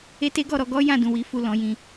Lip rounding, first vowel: unrounded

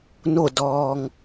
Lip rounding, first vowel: rounded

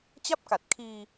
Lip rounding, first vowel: unrounded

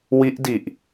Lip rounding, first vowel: unrounded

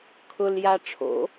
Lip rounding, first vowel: rounded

